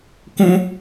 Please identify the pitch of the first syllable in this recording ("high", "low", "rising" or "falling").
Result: high